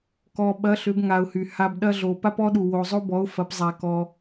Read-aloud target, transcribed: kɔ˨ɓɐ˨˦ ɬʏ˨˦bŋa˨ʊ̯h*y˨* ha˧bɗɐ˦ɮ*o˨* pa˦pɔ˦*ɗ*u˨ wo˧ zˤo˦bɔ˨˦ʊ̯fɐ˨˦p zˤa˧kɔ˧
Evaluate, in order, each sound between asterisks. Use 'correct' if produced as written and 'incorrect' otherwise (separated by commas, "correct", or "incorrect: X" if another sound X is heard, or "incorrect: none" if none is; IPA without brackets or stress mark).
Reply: correct, correct, correct